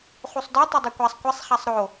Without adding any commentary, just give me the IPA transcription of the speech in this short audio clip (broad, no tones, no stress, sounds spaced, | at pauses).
χ u sˤ d œ tˤ ɛ dˤ o kʷ a sˤ kʷ ɛ sˤ χ a sˤ ɾ o